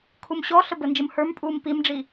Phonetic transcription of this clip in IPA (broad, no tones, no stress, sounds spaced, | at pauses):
kʰ u m ɕ ɔ ɬ ə b ə n d͡ʒ ə m h ə˞ m pʼ uː m p i m ɖ͡ʐ i